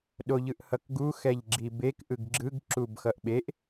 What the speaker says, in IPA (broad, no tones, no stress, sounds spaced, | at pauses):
ɗ o ʎ ɯ ʔ h ʌ k ɡ u x ɛ ʎ ɡ͡ǁ i b e k ʔ ɯ ɡ ɡ͡ǁ ɯ ɡ ǁ u b x ʌ ʔ ɓ e ʔ